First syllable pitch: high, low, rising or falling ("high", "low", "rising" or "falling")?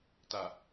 low